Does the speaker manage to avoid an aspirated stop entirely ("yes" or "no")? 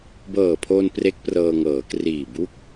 no